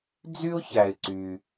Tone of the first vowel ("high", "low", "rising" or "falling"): high